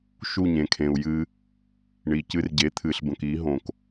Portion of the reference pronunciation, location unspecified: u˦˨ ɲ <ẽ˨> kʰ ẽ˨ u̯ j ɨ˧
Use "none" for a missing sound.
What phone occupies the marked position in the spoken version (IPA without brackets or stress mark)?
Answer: ẽ˨